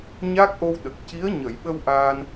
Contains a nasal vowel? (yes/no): no